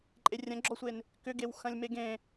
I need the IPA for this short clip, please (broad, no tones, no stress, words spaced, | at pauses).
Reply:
ǃʼerʲɐ̃ɡ͡ǁɔsʷen | kʏɡewxɐ̃lʲ meɡẽ